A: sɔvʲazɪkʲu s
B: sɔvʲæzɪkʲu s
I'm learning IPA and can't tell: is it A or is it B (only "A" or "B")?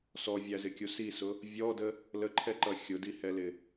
B